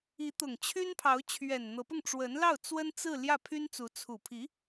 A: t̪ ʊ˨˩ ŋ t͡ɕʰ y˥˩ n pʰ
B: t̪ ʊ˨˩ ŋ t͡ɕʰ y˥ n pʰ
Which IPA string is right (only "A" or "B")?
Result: B